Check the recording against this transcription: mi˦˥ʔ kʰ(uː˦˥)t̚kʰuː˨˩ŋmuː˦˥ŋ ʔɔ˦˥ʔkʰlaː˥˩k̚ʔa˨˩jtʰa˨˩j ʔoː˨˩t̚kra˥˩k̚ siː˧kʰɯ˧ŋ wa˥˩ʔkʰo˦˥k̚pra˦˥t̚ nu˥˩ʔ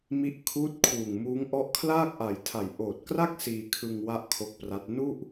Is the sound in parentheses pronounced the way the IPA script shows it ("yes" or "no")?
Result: yes